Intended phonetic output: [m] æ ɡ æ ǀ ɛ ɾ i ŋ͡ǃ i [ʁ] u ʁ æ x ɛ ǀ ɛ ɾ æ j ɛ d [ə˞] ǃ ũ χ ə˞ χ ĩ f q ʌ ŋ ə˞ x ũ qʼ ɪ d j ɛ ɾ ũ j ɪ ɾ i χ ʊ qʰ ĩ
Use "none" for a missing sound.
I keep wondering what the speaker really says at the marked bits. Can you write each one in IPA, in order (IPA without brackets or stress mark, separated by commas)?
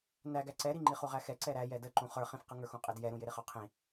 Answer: n, χ, ə